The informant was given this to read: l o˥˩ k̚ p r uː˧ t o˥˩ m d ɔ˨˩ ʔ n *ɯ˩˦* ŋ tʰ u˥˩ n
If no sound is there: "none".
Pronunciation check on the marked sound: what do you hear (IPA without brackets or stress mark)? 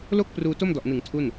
ɯ˩˦